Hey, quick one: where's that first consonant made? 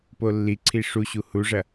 lips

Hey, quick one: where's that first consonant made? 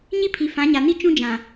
palate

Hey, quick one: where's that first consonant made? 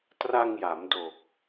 tongue tip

